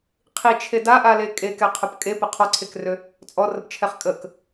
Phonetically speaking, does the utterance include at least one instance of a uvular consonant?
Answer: yes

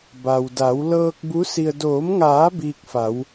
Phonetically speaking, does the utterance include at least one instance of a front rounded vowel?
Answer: no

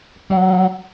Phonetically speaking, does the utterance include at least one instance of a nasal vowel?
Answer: yes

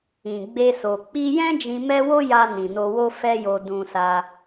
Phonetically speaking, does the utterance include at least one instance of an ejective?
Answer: no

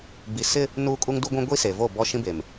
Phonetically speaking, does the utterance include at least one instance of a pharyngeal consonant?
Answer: no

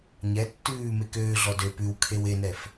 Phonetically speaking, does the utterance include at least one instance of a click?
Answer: no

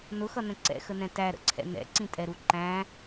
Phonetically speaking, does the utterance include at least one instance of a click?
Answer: yes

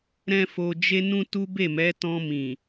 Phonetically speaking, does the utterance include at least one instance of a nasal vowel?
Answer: yes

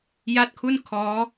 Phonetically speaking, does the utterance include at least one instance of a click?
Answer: no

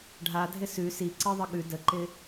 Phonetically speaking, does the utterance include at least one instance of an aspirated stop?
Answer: no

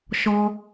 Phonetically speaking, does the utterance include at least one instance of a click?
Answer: no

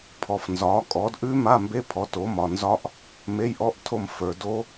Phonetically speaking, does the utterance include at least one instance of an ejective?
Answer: yes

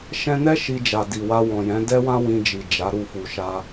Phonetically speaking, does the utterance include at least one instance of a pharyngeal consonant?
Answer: no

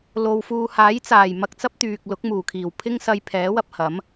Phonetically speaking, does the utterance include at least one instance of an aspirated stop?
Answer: yes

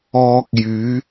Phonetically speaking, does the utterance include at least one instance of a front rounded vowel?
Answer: yes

